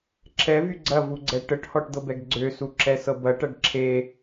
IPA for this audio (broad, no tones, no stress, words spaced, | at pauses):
ǁʰɛvy ɡ͡ǀɐvuɡ͡ǀɛ ʈəʈhɔʈd̪ɤbɛɡ ɡ͡ǀøsuǁɛsɤ bɐʈɐɖ ǁʰe